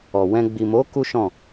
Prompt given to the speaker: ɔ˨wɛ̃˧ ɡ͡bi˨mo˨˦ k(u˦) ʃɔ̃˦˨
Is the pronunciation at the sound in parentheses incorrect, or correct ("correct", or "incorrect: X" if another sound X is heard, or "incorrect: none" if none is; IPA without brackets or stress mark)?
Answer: correct